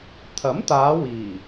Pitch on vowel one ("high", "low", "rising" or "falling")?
rising